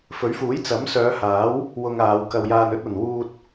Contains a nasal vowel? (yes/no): no